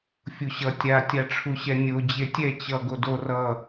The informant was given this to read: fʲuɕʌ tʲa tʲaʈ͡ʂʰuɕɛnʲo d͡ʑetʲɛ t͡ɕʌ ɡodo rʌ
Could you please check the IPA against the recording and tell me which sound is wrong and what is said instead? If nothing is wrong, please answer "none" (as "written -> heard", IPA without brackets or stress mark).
none